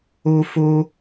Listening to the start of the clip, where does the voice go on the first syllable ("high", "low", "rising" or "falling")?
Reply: high